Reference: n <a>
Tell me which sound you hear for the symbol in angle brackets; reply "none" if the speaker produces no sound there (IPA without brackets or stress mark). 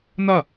a